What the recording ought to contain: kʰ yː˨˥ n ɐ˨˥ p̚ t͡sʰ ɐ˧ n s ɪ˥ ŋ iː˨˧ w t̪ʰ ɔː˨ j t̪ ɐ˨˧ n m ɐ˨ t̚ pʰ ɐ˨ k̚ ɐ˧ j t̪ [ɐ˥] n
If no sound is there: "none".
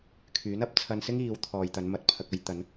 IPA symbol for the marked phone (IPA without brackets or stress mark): ɐ˨˧